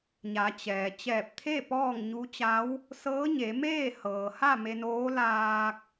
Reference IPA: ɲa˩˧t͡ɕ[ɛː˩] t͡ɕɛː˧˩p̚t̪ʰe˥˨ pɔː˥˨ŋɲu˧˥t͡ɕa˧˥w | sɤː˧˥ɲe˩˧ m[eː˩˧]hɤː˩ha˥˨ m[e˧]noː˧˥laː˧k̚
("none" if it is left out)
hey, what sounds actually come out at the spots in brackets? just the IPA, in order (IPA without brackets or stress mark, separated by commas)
ɛː˩, eː˥˨, e˧